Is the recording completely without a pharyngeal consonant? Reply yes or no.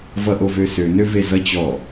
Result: yes